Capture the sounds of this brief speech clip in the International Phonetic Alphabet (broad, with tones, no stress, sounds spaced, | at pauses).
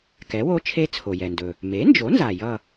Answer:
k ɛ˩˥ w o˧˥ t͡ʃʰ e˧˥ t͡sʰ o˩ j ɛ˩ n d ɵ˩ | m e˩˥ n d͡ʒ o˩˥ n z a˩ j ʌ˥˨